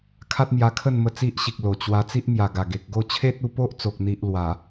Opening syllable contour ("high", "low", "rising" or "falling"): high